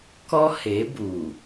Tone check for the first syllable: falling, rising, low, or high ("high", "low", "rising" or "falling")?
high